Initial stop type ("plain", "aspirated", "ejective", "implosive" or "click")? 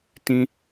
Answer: plain